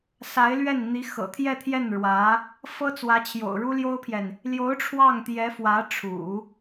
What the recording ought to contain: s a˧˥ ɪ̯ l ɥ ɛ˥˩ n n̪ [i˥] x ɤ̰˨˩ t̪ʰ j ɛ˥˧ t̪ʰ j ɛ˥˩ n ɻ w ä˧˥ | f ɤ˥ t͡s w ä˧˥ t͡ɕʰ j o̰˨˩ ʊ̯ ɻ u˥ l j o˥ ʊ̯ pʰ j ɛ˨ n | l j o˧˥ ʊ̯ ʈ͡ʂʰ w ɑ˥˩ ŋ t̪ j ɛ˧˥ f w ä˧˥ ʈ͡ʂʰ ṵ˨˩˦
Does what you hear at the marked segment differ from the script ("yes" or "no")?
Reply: yes